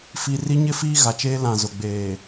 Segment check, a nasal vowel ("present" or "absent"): present